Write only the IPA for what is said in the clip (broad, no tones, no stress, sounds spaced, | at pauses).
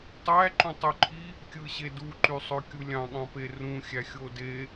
tˤ æ ǃ ũ tˤ y ǃʰ i | kʲ ɯ ɕ e d u ǃ y sˤ ø kʲ u lʲ ɑ̃ ɠ ɑ̃ p e r ũ xʲ æ xʲ o d e